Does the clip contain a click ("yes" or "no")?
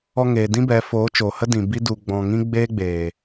no